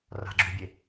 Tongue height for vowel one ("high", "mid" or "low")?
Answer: low